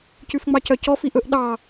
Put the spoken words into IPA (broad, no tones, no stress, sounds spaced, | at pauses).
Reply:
c ʉ f ŋ͡m ɑ c œ c ɔ f i ʔ ɵ ʔ ɗ ɑ